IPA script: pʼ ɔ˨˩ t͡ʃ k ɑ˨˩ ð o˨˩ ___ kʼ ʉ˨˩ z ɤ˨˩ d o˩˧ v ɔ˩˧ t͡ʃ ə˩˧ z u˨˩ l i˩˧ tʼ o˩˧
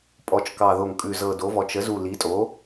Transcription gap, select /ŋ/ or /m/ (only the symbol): ŋ